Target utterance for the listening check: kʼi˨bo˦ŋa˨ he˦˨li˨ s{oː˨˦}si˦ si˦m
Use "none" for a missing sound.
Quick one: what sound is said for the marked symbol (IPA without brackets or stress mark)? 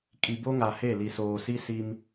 oː˨